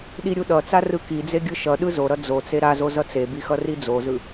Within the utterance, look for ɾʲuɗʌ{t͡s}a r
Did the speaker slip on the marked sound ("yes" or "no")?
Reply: no